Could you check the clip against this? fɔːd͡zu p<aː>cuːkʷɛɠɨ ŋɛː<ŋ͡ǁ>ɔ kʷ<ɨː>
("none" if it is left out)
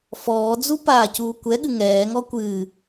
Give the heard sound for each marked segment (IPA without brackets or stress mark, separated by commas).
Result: aː, ŋ, ɨː